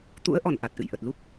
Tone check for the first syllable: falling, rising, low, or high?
rising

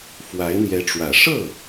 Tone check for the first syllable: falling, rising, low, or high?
rising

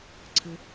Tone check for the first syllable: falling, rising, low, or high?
low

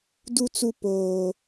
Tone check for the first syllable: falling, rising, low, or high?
high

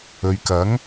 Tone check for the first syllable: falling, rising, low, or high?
low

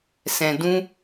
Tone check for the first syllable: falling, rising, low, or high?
low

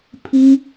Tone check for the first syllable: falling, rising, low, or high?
high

